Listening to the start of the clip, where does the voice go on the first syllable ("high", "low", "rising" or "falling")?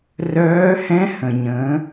rising